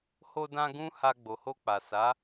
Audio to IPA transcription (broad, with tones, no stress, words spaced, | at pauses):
ho˧dã˧ ɡũ˦ha˧ ɡ͡bo˨ho˧ k͡pa˨sa˨˦